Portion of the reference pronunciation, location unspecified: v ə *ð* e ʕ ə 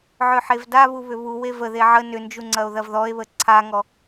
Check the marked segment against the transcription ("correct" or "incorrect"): correct